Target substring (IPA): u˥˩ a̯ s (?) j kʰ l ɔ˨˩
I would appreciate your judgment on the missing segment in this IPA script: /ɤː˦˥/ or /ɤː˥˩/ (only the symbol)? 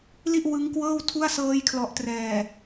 ɤː˦˥